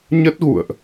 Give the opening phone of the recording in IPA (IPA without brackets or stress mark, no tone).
ɲ